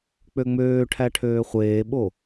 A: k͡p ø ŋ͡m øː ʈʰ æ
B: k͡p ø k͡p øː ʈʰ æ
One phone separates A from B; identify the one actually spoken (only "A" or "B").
A